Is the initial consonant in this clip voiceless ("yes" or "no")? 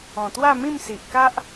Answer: yes